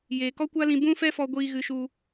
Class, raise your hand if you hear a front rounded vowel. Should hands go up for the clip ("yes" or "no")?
no